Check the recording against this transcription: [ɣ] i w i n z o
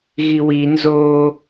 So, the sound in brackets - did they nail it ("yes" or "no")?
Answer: yes